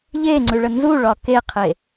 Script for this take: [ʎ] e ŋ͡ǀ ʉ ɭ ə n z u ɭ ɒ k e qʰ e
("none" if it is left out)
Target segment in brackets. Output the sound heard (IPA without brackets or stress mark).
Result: ʎ